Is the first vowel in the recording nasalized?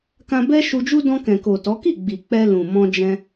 yes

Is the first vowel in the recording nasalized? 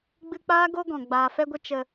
no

